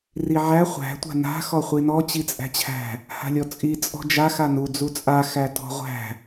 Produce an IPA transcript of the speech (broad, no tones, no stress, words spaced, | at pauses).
riʕæ χʷæ̤ tʷa̤na̤ xɔχʷinɔ t͡ɕit͡sʼæ̤t͡ɕʰæ̤ | ha̤lʲɔt͡sʼi t͡sʼɔ̤d͡ʒa xanu d͡zut͡sʼa xætɔ̤ʁʷæ̤